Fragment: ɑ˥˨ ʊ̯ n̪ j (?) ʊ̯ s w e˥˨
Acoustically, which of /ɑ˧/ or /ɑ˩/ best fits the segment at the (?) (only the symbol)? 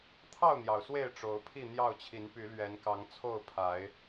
ɑ˩